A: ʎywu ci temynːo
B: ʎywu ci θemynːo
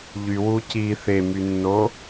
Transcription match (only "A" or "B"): B